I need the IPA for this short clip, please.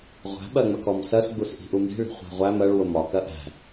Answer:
ʁʷ æ̤ ɓ ɜ ŋ͡m ə k ɔ m s ɜ s ɡ͡b u s ʔ i̤ ʔ u m i̤ ɭ i̤ χʷ æ̤ ʁʷ æ m ɜ ɭ w ʊ m ɒ k ɜ ʔ æ̤

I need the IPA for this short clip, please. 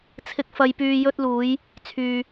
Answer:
t͡sʰ ɪ˨ k̚ f ɐ˨ j p yː˨ j ɵ˧ t̚ l uː˨˧ j | t͡sʰ yː˨

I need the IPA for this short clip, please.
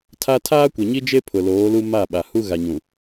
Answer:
tʰ a˦ tʰ aː˦ kʷ ɛ˨ ɲ i˦ d͡ʒ e˦ pʰ ʊ˨ l oː˨˦ l u˦ m a˦˨ ɓ a˨ h u˦ ɣ a˨ ɲ ũ˨

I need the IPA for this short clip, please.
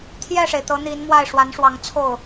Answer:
t̪ʰ j ɛ˥˩ ʂ e˩ ɪ̯ t̪ ɤ˧˥ n̪ i˧˥ n m w a˥˩ ɪ̯ ʂ w a˧˥ n ʂ w ɑ˧˥ ŋ t͡sʰ o˥˩ ʊ̯

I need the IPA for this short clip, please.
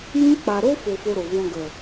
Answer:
j ĩ˦ k͡p a˧ ɾ o˦ f o˧ f o˧ ɾ o˨ v ɔ̃˧ ɡ ə˨

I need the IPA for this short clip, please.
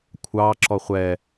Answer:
kʷʰ ɑ ǁ ɔ χʷ ɛ

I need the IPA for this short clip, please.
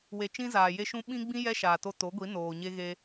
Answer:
w e˨ t͡ʃ ĩ˦ z aː˨ j e˦ ʃ ũ˦ ɓ ĩ˦ ɡ͡b ĩ˦ j ɛ˦ ʃ aː˨ t o˧ t o˨˦ ɡʷ i˨˦ n oː˨ ɲ e˦ ɣ e˦

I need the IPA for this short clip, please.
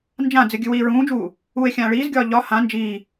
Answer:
n d͡ʒ ã d͡z ɨ ɡʲ ɨ w iː ɹ ũː d͡ʒ uː | uː e̯ xʲ ãː ɭ iː z ɡʲ ɒː ʎ ɒ h ã n d͡ʒ iː

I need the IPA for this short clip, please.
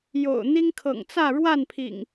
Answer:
j o̰˨˩ ʊ̯ n̪ i˦ ŋ kʰ ɤ̰˨˩ ŋ t͡s ä˥˨ ɻ w a˥˨ n pʰ ḭ˨˩ ŋ

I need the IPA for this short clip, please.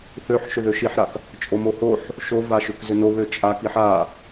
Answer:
θ ø ħ ʃ ʏ ð ø ʃ i ħ ɾ a k | t͡ʃʼ o m o h o ħ | ʃ o v a ʃ ʏ k z ʏ n o β ø t͡ʃʼ a k i ħ a

